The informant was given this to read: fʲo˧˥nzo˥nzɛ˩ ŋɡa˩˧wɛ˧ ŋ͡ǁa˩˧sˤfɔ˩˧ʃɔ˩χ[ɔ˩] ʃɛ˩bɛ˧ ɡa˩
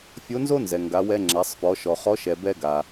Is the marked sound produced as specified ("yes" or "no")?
no